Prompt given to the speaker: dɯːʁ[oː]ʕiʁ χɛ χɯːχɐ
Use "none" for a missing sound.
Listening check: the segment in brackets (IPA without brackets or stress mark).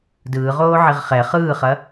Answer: oː